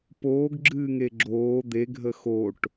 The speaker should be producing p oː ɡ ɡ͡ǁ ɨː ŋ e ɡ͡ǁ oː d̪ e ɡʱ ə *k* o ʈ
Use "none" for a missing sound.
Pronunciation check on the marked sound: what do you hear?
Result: x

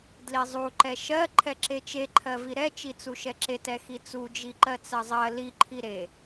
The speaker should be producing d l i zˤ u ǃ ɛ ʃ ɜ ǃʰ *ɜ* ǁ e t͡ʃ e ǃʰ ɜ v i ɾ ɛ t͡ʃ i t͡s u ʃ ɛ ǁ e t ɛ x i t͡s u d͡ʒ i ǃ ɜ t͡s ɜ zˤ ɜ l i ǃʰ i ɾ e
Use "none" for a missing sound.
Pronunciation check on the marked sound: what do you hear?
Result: ɛ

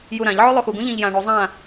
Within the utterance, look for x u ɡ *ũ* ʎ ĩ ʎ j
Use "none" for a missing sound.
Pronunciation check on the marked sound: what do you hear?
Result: ũ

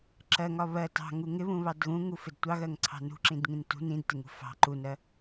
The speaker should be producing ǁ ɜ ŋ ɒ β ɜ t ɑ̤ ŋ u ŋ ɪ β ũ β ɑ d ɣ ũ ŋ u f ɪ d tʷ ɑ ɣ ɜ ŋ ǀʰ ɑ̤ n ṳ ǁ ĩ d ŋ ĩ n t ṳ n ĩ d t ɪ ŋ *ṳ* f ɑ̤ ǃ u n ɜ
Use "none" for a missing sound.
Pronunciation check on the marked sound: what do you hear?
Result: ṳ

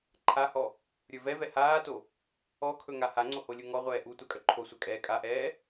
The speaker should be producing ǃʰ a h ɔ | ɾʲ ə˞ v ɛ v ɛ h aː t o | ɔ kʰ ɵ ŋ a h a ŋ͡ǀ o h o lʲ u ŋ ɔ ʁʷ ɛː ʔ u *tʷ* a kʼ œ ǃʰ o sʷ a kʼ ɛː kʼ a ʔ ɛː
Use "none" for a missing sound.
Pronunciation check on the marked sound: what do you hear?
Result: tʷ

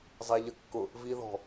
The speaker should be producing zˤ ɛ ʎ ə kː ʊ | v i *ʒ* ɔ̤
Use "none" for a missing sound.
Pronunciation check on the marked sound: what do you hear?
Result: ð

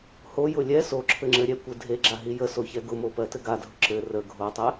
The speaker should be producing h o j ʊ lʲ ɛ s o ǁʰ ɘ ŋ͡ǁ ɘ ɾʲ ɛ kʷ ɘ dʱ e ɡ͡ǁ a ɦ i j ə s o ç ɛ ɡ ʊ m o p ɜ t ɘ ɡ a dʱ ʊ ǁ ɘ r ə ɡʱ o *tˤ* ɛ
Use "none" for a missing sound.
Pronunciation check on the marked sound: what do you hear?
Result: tˤ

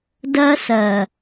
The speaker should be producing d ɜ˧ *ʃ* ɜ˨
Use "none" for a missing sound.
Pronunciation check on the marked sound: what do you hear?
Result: s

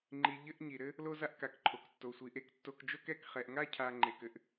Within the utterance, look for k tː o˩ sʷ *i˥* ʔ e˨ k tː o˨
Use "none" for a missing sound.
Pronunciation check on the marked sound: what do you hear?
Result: i˩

